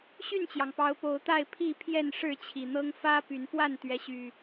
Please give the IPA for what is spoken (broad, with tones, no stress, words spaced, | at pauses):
ɕy˥˨nt͡ɕjɑ˩ŋpɑ˨˦ʊ̯ po˨˦ʊ̯t̪a˥˨ɪ̯pʰi˥˨ pʰjɛ˥˨nʂɻ̩˥˨t͡ɕʰi˨˩n̪ɤ˦ŋ fä˦py˨˦npwa˥˨n t̪ɥɛ˨˦ɕy˨˩